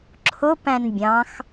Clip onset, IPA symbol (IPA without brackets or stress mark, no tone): ǁʰ